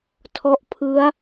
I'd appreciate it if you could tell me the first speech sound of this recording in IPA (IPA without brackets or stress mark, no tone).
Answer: tʰ